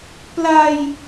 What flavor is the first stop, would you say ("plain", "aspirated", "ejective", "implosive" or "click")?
plain